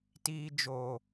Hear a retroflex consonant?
no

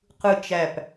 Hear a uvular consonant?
yes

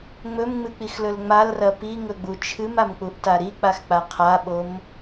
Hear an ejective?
no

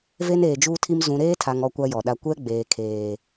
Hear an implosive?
yes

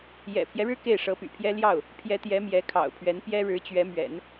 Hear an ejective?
no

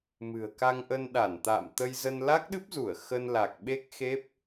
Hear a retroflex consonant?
no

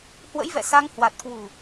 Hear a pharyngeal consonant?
no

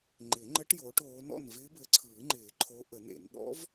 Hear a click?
yes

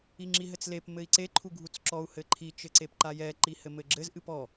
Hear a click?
yes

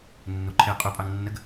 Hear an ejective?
yes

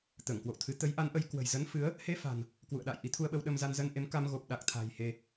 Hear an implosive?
yes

